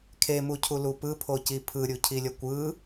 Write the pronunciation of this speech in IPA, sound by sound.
kʰemucʰulu pɯpʰoci pʰɯɾʲucʰilʲʌ kʷɯ

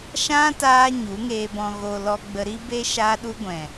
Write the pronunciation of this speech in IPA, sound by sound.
ʃã˦ taː˦ɲu˨˦ŋeː˧ bɔ̃˨ɣo˨ lɔ˧ɡ͡bə˧ɾi˦be˦ ʃaː˧ɗu˧ɡʷɛ̃˨

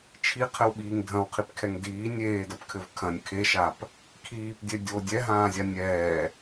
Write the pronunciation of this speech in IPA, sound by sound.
t͡ʃʰiqʰɘwɓiːŋ dʱɐ̃wqʰipkʰɛŋ diː nʲeːdɐpkʰɘv kʰɐ̃nʲ kʰeʃap | kʰiːpdʲɛ dʲo dʲɛɦãːzʲa nʲɛː

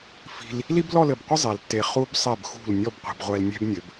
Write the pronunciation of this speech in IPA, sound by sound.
fi̤˧l | li˥blɔ˥˧lɘ˧˩bqʷə˥ zˤɛ˩˧ltːe˧˩ χu˧bsˤɛ˧˩bxṳ˧˩l nʲɔ˥˧bqʷe̤˩˧bʁʷɛ˧lnʲɛ̤˥b nʲɘ˩˧b

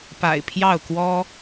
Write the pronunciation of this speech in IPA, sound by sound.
pa̰˨˩ɪ̯pʰjɑ˥˨ʊ̯ kwɔ˦

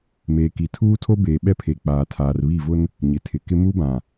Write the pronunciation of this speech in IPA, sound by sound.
meː˨ki˨tʰuː˦tʰo˦ beː˨ɓɛ˦pʰe˨ k͡paː˨tʰaː˨rβi˦˨vʊ˦n | ɲɪ˨tʰɪ˨kɪ˦ mu˦bã˨

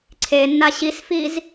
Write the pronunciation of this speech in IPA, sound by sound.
ǀʰenːa ɕisfiz

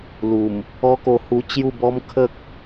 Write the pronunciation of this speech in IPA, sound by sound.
lu˨˩m | ɔ˦ko˧hu˧ t͡ɕju˥˧bɔ˦m kʰə˦k̚

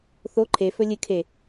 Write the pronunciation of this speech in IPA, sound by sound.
θo ǃʰefɵ lʲɨ kʰe

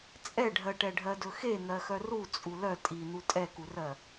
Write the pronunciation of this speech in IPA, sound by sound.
t͡sʼɛɖʱɜʈɛ ɖʱɜdɵxe n̪ɜxœru t͡sʼulœ tʼin̪u tʼɛkurɜ

